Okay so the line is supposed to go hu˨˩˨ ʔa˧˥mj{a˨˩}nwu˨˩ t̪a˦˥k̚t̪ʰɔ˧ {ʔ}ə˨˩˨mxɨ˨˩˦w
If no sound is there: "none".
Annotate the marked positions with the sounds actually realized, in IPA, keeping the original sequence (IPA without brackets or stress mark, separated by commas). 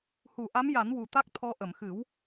a˨˩˦, ʔ